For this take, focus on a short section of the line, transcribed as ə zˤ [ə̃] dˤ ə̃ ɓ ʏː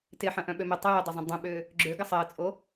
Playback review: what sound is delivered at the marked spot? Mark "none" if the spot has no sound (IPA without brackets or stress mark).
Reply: ə̃